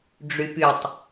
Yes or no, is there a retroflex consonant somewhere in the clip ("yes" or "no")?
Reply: yes